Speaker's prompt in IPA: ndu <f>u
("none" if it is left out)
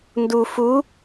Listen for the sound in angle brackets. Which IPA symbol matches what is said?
f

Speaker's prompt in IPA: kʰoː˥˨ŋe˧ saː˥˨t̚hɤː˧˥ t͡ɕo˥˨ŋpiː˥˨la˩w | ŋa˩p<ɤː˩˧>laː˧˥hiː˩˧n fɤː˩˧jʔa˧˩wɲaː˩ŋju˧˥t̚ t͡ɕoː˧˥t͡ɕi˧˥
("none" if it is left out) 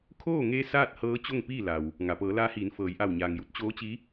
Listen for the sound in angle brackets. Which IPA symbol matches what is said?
ɤː˩˧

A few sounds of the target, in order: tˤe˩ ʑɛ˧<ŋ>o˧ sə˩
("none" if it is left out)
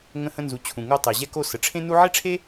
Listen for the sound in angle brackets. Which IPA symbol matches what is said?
k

